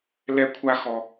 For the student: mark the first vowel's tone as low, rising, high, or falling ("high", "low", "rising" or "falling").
falling